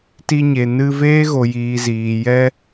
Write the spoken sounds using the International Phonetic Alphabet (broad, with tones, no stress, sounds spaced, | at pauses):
t i˧ ɲ e˨ n ɨ˧ v eː˦ ɣ o˨ j iː˨ z iː˨ j ɛ˧